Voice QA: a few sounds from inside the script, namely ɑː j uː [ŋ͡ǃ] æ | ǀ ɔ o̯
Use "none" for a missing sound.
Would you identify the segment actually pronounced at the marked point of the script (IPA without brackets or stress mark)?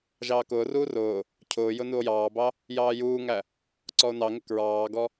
ŋ